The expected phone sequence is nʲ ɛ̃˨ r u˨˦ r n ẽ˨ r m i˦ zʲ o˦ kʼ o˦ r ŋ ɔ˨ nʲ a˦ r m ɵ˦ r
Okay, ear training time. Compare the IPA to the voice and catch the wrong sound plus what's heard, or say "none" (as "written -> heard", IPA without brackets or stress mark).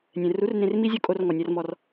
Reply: ɵ˦ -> ɔ˦